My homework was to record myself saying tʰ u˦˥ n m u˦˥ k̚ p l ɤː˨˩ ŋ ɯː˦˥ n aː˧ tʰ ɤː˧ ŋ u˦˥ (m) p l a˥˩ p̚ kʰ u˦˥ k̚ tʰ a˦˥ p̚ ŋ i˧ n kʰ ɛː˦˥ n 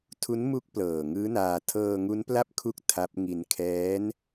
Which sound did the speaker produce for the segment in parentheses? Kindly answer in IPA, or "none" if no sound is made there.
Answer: n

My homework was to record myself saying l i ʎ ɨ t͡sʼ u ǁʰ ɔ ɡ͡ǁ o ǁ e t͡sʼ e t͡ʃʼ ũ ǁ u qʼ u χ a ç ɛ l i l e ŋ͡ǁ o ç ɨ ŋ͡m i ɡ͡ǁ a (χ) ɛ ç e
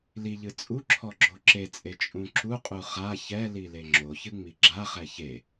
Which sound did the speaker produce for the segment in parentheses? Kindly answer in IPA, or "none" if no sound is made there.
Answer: χ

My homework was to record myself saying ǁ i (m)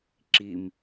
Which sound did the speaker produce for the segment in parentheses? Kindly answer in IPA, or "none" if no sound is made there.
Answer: m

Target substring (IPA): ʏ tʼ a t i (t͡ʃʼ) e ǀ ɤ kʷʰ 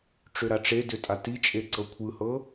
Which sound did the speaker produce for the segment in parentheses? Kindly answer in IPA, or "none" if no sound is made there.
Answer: t͡ʃʼ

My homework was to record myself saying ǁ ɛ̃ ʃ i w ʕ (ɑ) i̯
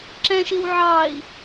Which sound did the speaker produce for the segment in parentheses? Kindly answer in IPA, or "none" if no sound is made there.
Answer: ɑ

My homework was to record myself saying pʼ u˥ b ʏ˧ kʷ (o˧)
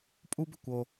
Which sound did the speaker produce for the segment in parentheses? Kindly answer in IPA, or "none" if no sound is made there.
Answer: o˧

